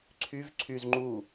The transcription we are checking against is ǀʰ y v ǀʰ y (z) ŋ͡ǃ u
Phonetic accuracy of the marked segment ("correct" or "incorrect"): correct